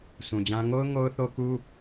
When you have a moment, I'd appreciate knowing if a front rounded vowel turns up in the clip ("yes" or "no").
no